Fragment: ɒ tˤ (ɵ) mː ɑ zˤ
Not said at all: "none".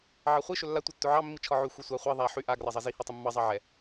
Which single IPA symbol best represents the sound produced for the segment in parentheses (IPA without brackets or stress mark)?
ɵ